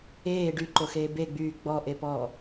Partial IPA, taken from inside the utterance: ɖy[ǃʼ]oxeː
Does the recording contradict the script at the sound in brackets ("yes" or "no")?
yes